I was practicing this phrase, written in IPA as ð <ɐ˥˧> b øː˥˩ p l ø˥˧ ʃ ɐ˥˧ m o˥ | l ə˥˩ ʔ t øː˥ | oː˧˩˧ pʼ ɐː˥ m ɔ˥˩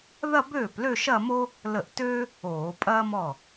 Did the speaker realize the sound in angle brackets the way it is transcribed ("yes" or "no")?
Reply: yes